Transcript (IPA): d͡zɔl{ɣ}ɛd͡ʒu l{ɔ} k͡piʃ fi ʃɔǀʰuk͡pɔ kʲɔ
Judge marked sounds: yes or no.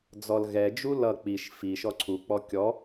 yes, no

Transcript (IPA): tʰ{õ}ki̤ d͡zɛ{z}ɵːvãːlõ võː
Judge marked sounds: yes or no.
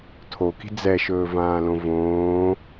no, no

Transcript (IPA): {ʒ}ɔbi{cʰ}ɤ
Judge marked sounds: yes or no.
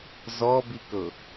no, no

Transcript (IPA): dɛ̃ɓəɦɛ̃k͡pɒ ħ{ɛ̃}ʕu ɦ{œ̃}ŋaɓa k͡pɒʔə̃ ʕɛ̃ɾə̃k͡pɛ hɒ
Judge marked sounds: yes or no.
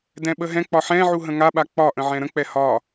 yes, no

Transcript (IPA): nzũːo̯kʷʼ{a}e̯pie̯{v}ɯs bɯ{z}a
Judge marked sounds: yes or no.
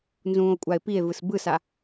yes, yes, no

